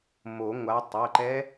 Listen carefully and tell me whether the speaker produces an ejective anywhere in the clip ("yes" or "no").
no